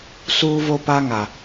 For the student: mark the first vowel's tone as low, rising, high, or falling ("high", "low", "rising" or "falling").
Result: high